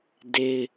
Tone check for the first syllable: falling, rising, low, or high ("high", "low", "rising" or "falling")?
high